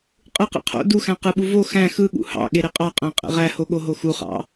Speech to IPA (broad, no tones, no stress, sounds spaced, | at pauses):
qʼ ɯ q ḛ qʰ o̰ d u x æ̃ q ɯ ɓ u v o x æ̃ x ɯ ɠ ṵ h ɑ̰ ɠ e ɾ e qʼ ɑ qʼ æ̃ qʼ ḛ ʁ æ h o ɠ o ɦ o x u χ ɑ̰